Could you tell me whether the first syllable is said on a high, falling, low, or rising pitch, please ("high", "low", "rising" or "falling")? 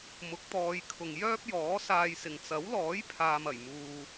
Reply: rising